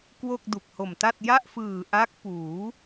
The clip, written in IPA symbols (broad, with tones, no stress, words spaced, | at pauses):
kwo˥˩k̚du˨˩k̚ho˨˩mta˥˩t̚ ja˥˩ʔfɯː˨˩ʔa˦˥k̚ puː˩˦